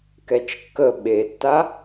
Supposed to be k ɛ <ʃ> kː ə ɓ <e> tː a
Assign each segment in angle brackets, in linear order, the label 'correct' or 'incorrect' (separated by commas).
incorrect, correct